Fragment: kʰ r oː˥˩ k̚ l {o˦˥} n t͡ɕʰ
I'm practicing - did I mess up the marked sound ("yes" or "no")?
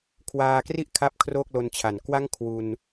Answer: yes